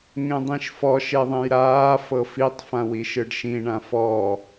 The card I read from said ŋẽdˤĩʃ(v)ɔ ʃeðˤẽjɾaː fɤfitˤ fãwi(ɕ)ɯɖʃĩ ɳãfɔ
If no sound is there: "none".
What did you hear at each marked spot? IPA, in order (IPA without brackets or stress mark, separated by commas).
f, ʃ